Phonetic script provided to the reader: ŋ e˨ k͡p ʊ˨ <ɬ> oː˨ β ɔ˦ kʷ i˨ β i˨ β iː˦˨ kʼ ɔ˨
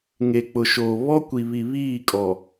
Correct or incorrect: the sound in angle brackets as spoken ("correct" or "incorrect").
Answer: incorrect